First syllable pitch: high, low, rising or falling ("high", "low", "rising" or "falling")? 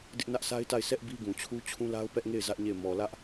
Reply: high